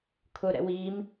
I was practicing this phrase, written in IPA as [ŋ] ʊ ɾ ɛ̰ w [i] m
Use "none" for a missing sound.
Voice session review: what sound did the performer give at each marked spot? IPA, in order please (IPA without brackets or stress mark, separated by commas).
kʰ, i